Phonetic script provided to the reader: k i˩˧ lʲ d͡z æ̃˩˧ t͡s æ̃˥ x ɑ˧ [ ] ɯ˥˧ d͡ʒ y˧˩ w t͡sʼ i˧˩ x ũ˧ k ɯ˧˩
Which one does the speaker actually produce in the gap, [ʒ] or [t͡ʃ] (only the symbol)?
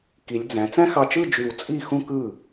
t͡ʃ